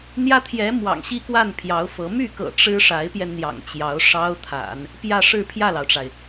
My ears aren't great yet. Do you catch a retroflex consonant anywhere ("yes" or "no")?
yes